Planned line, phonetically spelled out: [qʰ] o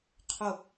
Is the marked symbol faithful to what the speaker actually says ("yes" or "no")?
yes